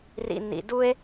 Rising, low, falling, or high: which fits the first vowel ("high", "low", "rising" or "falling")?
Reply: low